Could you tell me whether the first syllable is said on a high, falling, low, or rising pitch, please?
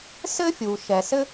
high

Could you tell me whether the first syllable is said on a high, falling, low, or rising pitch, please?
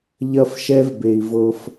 high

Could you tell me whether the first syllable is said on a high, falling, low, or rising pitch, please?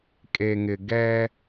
low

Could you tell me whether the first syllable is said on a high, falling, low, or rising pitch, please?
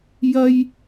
high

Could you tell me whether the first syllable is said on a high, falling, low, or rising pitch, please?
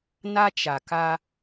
high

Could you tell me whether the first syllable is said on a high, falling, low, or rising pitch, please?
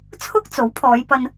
high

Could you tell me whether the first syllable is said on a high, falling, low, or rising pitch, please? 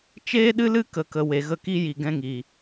high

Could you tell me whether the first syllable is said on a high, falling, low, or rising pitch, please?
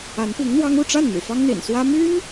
rising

